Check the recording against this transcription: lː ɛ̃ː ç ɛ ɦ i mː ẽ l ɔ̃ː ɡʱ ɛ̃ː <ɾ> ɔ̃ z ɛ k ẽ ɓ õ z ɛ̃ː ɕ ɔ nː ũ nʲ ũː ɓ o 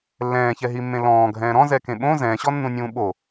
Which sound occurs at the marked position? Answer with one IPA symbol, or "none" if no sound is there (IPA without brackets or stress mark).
ɾ